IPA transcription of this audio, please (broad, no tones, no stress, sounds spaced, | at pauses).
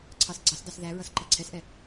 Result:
ǀʰ ɑ s ɡ͡ǀ ɑ s d ɑ s ð æ ɹ ʌ s ǃ ʌ ǀʰ ɛ s ʔ ɛ